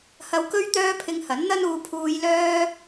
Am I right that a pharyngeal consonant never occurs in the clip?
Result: yes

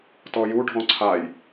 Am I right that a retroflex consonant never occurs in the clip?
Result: no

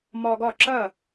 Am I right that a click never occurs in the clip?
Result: no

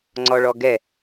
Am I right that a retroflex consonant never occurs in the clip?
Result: no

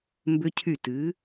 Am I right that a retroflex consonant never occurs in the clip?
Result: yes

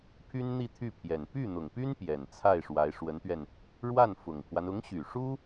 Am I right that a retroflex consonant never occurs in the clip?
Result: no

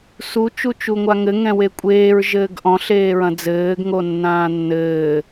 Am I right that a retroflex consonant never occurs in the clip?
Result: yes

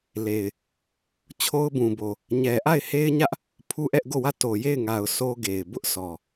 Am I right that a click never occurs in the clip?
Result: yes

